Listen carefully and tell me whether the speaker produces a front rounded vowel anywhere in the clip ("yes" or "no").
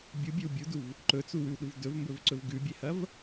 no